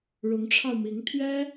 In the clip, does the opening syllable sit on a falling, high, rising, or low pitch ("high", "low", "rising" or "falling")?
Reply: rising